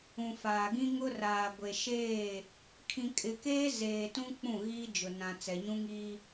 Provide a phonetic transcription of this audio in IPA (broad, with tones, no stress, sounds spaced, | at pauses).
ũ˨ f aː˨ ɡ ĩ˦ ŋ ʊ˦ r aː˨ ɡʷ e˨ ʃ eː˦˨ | kʰ ĩ˨ kʼ ɪ˨ k eː˦ z eː˨ t ũ˦ k͡p ũ˦˨ ɣ iː˦ d͡ʒ ʊ˨ n ã˨ t͡s ɛ˨ ɲ ũ˦ ŋ iː˦